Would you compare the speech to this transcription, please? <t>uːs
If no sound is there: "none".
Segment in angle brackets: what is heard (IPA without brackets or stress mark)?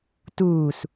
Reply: t